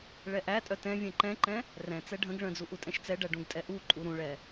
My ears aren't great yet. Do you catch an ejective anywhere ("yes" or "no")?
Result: yes